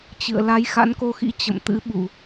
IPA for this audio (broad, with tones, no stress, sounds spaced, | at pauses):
t͡ɕ ɨ̰˧˨ ə̯ l a˨˦ j x a̰˧˥ n k o˧ x ḭ˧˥ t͡ɕ ə̰˧˨ m t̪ ɨ̰˧˥ ɓ u˧˩˨